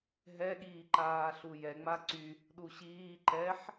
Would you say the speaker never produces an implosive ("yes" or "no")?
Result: no